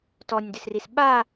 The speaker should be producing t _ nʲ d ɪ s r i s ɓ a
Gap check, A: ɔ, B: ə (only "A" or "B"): A